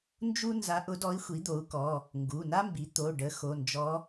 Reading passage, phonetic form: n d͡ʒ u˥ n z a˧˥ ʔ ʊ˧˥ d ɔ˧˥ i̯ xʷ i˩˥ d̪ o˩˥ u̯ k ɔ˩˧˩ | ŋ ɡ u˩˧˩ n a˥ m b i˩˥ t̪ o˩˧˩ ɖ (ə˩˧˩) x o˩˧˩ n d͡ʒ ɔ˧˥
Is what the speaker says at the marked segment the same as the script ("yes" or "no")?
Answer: no